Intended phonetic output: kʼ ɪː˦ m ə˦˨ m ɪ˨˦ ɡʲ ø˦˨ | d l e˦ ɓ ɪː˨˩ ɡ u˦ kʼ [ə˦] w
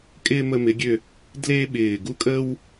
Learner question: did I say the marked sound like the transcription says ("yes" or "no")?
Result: yes